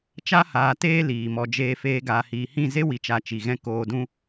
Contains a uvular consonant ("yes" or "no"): no